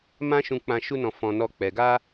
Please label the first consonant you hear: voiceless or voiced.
voiced